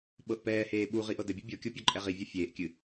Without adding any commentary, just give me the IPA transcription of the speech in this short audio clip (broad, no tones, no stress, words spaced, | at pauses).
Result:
ɓɤʔpɛːheː ɓuʁi ʔɤdɘbʲu bʲɤkʲo pʲɒǃʼɛʁivʲɒ fʲeːʔkʲɨ